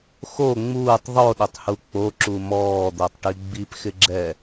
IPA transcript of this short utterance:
x o ŋ͡m uː tˤ ðˤ o ɗ ɪ tˤ h u k͡p o ǁ u m ɔː d̪ o tˤ ʈ i ɡ͡b i p x ɪ ɡ͡ǁ ɛ

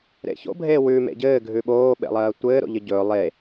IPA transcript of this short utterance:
ɾ ḛ ç o̰ bʱ eː w ʉ m ḛ ɟ ɘː ɡʱ ʉ ɓ oː ɓ ḛ lˠ ɜː tʷ ɘː ɾ o̰ ʎ ɘ ɟ ɵː lˠ e

